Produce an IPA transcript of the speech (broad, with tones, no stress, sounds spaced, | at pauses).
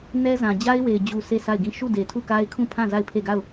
n ɛ˦ z ã˨ d͡ʑ a˦ ɪ̯ w e˨ ɪ̯ d͡ʑ u˨ sʰ e˦˨ sʰ a˦˨ ɪ̯ ɡ ĩ˦˨ ʃ u˦˨ d e˨ tʰ u˦˨ k a˦ ɪ̯ kʰ ũ˦˨ pʰ ã˦˨ z a˦˨ ɪ̯ pʰ e˦˨ ɡ a˦˨ ʊ̯